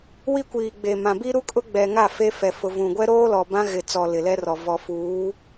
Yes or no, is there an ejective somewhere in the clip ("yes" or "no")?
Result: yes